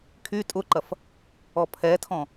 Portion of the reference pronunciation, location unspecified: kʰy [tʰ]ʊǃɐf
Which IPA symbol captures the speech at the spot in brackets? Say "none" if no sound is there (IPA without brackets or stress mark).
tʼ